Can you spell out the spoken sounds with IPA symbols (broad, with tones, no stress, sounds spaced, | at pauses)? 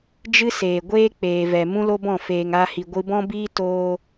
d͡ʒ ɨ˦ s eː˨ ɡʷ eː˦ k͡p eː˨ v ɛ˨ m ũ˦ l o˦ b ɔ̃˦˨ f eː˨ ŋ a˧ h i˨ ɡʷ ɨ˧ b ɔ̃˦ b iː˦ t oː˧